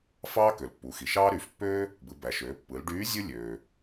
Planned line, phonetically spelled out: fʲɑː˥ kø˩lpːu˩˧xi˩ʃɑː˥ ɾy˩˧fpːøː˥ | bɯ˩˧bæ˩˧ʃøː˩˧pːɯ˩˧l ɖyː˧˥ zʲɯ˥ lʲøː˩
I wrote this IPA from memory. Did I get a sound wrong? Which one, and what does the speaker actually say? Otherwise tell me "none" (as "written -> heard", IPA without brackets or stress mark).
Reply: fʲ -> f